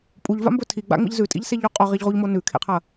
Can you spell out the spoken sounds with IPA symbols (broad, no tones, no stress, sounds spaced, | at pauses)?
pʼ u ʎ v a̰ m b ɵ tʰ i ɡ͡b a̰ ŋ͡m ḭ ʎ z ʉ tʼ ḭ ʎ s e ʎ o qʼ o ʁ i ʎ ʁ u ʎ m o n ʉ kʰ ḛ qʰ ɐ